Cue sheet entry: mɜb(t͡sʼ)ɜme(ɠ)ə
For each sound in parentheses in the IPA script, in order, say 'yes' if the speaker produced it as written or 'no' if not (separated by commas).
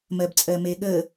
yes, yes